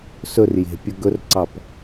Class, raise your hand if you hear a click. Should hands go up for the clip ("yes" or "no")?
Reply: yes